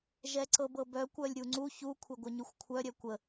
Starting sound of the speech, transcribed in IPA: ʒ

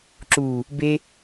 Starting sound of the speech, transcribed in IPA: ǁ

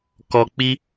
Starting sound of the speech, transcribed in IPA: k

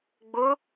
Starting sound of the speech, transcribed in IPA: ɡ͡b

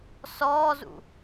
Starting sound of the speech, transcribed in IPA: s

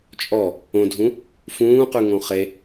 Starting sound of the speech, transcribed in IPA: t͡ʃʼ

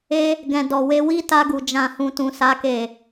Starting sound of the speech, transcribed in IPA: e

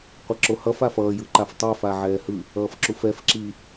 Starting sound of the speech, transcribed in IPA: qʷ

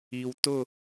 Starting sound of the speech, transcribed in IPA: i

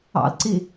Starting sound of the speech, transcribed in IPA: ɑ̰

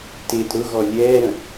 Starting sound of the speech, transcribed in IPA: t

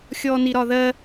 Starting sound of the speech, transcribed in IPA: xʲ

